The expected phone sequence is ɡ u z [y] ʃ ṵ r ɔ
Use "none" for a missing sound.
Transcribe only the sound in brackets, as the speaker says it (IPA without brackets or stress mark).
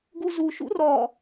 u